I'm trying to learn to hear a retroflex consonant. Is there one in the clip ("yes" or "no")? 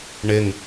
yes